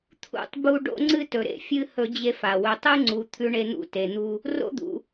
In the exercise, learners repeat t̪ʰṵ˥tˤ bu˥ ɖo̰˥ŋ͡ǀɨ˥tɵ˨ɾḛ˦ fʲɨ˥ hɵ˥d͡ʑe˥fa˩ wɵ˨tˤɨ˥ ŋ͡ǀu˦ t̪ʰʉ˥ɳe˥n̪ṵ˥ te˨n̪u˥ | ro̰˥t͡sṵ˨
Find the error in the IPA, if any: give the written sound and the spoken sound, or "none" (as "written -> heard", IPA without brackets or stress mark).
t͡s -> d̪